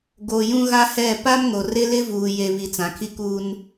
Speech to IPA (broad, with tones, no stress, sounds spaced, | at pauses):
ɡ o˨ j ũ˦ ɣ a˦ h ɛ˦˨ p a˦ m ŋ o˨ r ɪ˦ l ɪ˦ v uː˨ j e˨ β i˨ t͡s ã˨ kʰ i˦ k uː˦ n